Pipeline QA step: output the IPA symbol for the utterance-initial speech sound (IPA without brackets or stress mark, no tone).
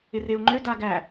ɪ